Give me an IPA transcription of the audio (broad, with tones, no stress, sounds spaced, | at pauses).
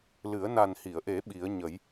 l ɨ˨˩˦ ə̯ n a˨˩ n h i˨˩˨ ə̯ ʔ e˨˩˦ ɓ i˨˩˦ ə̯ ɲ ə˨˩˦ j